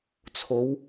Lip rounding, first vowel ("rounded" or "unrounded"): rounded